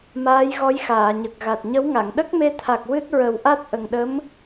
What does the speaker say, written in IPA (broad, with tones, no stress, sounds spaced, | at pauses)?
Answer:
m aː˧˥ j ɣ ɔ˧˥ j x aː˨˩˨ ɲ ə˨˩ k̚ ɣ a˨˩ t̚ ɲ ə˧˥ w ŋ a˨˩˨ ŋ ɗ ə˦˥ k̚ m e˧ t̪ʰ a˨˩ k̚ w ɨ˦˥ t̚ ɹ ə˨˩˦ w ʔ a˦˥ t̚ ʔ ə˨˩ ŋ ɗ ə˧˥ m